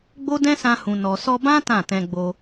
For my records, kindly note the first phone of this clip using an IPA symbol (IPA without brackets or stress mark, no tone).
ɡ͡b